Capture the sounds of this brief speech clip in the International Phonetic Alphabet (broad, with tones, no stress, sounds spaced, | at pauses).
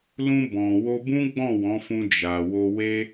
l ũ˧ b ɔ̃˨ w o˧ b ũ˦ ɡ͡b ɔ̃˦˨ w ɔ̃˨˦ f ũ˧ d͡ʒ a˨ w o˧ w e˦